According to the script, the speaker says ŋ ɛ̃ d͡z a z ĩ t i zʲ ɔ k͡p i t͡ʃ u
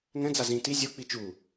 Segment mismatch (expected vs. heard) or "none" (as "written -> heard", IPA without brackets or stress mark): ɔ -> o